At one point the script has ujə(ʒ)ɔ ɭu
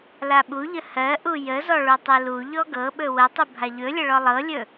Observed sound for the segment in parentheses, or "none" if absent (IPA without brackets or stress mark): z